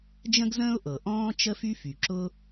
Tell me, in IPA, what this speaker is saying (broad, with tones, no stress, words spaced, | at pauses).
d͡ʒə̃˥ɡzə̃ː˥ʊ̯ʔɤ˩ ʔɔ̃ː˥t͡ʃə˥ fy˥fy˩ ǁʊ˥